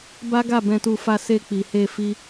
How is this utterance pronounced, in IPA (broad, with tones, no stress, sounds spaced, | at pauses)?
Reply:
b a˦ ɡ a˦˨ b ɛ̃˧ t u˧ f a˧ s e˧ k͡p i˨ h e˧ f i˦